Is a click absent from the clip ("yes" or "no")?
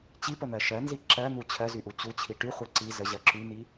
no